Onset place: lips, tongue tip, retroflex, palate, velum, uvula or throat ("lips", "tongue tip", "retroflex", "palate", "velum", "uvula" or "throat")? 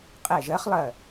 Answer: uvula